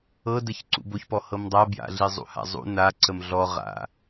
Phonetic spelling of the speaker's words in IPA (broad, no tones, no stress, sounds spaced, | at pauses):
ɤ d ə ç ǀ ṵ b o ç p ɔ h ɤ m dˤ a b j a̰ ɮ i zˤ ṵ h a̰ zˤ ṵ n a ǀ ə m ɮ ɔ ʁ a̰